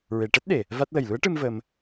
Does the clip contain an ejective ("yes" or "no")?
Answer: no